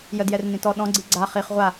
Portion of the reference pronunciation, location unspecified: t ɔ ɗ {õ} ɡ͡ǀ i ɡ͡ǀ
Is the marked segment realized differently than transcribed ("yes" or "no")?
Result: yes